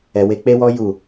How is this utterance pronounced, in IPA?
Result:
ɛ˧we˦ k͡pe˦wɔ˦ ju˦˨

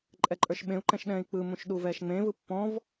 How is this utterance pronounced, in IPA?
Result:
ǃʼɛǃʼə˞ʃɓẽu̯ǃɛ̃ʃ ɗɛ̃ːi̯k͡pɯmũʃ ɗuvɛːʃŋ͡mẽvɯ pːɔ̃v

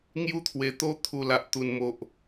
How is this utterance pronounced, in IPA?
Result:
ŋju˧t̪ʰwe˨˩ t̪o˧t̪ʰu˨˩ la˨ʔt̪u˨˩nmo˨ʔ

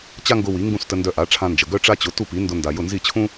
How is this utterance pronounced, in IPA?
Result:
t͡ɕa˥ŋɡʊ˧ wi˩˥ŋɡũ˥˩stə˧ ndœ˧ʔa˩˥ʈ͡ʂʰã˧nd͡ʒə˩ ɡœ˥ʈ͡ʂa˥t͡ɕʊ˩˥ tu˥˩pi˩˥ndʊ˧ nda˩jʊ˥˩ nzi˥˩t͡ɕʰũ˥

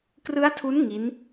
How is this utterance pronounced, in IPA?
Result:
krɯ˦˥a̯tʰu˦˥n ŋi˦˥n

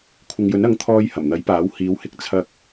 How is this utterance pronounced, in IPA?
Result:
kʷʰɪ˨ŋjɵ˨˥nɐ˨˥ŋ t̪ʰɔː˧j hɐ˨˩mn̪ɐ˨˥jpaː˨˥w hiː˨˧whɪ˧k̚ t͡sʰɐ˧k̚

